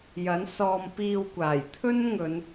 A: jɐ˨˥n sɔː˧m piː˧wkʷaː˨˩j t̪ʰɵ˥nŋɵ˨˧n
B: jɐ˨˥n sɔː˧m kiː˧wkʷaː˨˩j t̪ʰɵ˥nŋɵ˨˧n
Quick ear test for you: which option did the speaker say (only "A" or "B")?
A